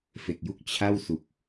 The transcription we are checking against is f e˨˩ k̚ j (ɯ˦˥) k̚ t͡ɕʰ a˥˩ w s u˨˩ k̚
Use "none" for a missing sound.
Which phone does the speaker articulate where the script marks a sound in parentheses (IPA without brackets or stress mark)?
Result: u˦˥